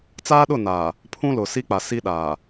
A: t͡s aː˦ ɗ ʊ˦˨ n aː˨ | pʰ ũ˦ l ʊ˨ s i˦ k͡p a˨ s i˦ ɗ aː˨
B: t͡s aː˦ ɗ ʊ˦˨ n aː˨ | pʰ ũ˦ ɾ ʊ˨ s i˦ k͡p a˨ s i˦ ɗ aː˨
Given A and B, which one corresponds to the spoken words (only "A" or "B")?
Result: A